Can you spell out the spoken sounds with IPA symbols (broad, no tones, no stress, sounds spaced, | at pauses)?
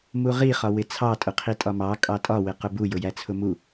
m u ʁ i χ ɒ w ɪ t͡sʰ ɑ tʼ ʊ qʰ i tʼ ɒ m ɑ kʼ ɑ tʼ ɒ w ɪ q ʊ b u j ʊ j æ t͡sʰ ʊ m u